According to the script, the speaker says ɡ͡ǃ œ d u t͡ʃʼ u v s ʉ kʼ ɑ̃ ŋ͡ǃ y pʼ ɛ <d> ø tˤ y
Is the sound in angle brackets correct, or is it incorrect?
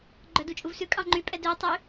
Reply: correct